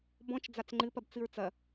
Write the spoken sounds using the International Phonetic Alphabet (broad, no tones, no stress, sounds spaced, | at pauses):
b ɔ̃ t͡ʃ d͡z a t͡s ŋ͡ǃ ɨ p ɐ b t͡s ɨ ɹ t͡s ɐ